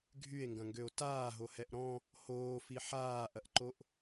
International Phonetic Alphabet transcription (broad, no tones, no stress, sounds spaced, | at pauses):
ɡʱ y e̯ ŋ ɡ ɐ̃ ŋ ɡ ø o̯ t aː ɦ o h ɛ ʔ ɾ ɔ̃ | h oː f i ħ aː ʔ ɐ ʔ ǃ o ʔ